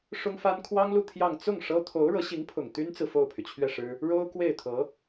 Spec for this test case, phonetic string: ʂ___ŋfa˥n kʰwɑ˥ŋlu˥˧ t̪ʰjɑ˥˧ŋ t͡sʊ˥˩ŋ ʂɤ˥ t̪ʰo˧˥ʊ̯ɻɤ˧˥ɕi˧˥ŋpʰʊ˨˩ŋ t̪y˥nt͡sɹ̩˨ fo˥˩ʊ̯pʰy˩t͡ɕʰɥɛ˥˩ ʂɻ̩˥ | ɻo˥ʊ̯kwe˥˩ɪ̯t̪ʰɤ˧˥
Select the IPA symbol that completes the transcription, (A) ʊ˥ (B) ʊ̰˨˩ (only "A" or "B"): A